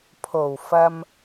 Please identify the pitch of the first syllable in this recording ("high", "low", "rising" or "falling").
low